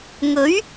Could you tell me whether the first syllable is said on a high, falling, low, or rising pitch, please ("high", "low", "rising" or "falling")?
rising